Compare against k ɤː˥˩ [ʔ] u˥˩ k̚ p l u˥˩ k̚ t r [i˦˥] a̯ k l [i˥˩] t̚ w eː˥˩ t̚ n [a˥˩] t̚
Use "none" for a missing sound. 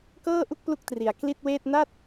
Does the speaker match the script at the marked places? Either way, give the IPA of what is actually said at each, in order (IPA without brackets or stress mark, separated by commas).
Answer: ʔ, i˩˦, i˥˩, a˥˩